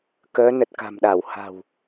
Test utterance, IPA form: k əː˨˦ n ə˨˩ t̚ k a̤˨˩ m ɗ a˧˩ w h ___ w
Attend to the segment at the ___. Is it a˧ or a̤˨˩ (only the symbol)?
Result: a̤˨˩